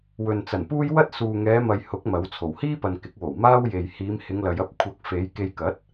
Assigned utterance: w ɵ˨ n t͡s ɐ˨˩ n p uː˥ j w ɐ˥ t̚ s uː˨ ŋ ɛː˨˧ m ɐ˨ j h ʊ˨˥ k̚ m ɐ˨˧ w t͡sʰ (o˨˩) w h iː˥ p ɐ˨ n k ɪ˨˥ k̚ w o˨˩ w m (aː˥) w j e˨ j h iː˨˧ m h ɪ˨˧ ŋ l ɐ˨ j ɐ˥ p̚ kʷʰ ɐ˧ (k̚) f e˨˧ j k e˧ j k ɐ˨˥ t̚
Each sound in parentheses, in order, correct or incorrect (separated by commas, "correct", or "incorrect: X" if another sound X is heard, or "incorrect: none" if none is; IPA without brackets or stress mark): correct, correct, correct